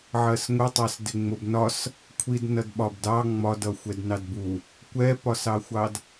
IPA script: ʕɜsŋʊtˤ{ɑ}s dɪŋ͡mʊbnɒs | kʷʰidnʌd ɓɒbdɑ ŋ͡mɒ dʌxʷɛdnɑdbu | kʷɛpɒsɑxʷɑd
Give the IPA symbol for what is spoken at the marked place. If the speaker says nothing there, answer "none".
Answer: ɑ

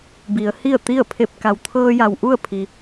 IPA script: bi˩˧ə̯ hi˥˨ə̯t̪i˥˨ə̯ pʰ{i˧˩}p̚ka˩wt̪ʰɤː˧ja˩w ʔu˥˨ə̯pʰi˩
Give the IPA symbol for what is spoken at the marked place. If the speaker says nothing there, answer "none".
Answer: e˧˩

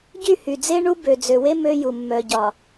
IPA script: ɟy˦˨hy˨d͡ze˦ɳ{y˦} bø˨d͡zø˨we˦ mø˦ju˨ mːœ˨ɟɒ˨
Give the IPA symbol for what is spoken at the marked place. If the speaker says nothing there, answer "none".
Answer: u˦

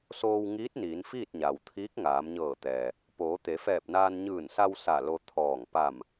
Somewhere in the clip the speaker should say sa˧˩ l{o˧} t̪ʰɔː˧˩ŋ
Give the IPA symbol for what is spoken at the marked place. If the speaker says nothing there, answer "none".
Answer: o˧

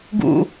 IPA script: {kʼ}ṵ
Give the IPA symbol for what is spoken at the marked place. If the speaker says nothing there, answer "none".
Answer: ɡ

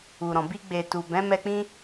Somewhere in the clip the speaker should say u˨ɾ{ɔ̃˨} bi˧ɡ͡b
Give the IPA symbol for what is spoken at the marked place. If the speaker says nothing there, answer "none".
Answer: ɔ̃˨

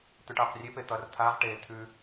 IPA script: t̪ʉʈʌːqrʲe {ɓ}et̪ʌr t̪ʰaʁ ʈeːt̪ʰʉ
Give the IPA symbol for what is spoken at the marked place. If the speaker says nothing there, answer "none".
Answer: p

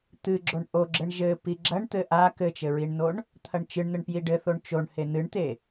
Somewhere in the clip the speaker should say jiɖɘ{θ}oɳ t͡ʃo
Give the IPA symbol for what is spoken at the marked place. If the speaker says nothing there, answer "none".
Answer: θ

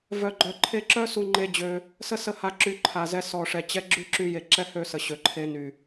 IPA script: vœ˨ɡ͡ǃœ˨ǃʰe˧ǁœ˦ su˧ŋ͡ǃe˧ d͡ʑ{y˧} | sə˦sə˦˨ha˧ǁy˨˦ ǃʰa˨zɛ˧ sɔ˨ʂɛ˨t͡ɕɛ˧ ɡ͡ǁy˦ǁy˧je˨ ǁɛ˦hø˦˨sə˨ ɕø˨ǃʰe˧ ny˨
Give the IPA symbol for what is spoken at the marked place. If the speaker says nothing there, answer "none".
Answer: ø˧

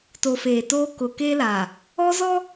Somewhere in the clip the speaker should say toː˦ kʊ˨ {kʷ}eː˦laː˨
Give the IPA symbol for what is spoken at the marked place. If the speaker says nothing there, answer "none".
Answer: k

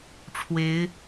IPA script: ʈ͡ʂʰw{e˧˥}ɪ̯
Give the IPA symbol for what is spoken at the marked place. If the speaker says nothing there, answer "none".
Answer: e˧˥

